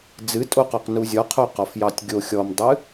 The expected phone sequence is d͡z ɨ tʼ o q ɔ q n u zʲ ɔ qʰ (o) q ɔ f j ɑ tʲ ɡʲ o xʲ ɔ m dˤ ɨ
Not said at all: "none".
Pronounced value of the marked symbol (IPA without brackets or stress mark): o